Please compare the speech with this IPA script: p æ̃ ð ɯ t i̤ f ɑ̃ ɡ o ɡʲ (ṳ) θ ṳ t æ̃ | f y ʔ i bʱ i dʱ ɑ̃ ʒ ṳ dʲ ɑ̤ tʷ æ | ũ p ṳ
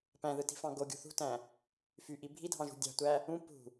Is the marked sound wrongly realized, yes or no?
no